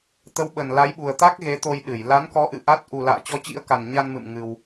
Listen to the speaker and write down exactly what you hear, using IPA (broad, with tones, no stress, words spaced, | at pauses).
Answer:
t̪ə˨˦wɓə˨˩nla˨˦jɓu˨˩ə̯ t̪a˦˥k̚ɣe˨˦t̪o˧j ɗɨ˧˩jla˨˦nkɔ˨˦ ʔɨ̰˧˨ʔa˦˥t̚ ʔu˨˩la̰ː˧˨t͡ɕɔ˨˦ t͡ɕḭ˧˥ə̯ka˨˩nɲa˧nmɨ̰˧˨m ŋɨ˧w